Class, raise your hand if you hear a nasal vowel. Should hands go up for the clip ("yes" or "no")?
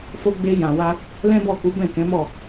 yes